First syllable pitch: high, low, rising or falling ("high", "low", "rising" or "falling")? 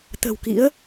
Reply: low